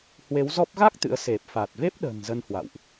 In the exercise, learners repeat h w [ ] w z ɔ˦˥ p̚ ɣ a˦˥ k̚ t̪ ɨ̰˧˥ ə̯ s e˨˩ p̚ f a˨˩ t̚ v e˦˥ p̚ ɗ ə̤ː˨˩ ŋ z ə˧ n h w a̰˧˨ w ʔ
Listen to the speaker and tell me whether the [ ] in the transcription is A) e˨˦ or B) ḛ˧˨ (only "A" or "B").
A